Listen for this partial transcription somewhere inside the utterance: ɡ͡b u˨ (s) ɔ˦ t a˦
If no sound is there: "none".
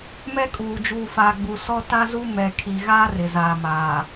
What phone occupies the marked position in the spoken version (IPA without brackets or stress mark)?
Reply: s